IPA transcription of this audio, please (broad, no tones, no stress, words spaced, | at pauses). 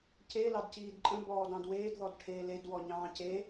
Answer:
ce lɑdciːdǃʼə̃ bɔːdɑ̃dweːd ðɔdʈʰeːled wɔɲɑ̃ːce